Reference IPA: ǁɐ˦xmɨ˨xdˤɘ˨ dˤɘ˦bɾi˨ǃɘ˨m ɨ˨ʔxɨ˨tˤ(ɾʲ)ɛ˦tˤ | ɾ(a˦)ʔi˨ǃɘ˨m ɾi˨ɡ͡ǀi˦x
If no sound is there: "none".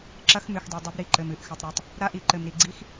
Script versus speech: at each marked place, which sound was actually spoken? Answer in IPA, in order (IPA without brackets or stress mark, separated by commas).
ɾ, a˦